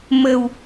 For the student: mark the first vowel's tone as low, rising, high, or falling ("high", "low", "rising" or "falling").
low